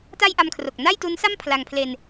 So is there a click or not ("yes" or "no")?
no